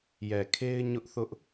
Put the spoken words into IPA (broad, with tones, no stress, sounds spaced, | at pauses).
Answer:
j ɛ˨ kʰ e˦ ɪ̯ ɲ ʊ˦ ʔ θ ʊ˦ ʔ